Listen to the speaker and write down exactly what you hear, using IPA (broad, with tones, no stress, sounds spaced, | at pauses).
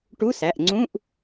ʈ u˧˥˧ s æ˩˧˩ ʔ ŋ͡ǀ ũ˧˥˧ ʔ